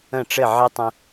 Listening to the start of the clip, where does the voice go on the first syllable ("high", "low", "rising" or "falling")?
falling